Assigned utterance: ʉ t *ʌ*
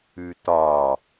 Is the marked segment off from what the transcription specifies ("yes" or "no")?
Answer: yes